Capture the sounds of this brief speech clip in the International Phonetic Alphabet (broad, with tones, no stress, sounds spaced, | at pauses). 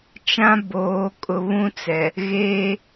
t͡ʃ ã˦ b oː˨˦ kʼ ʊ˨ β ũ˦ t͡s ɛ˨ | ɣ eː˦